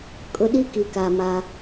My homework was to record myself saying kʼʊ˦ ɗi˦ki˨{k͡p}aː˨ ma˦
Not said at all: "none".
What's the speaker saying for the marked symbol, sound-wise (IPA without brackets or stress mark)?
k